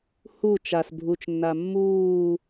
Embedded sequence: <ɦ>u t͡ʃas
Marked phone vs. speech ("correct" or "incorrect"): incorrect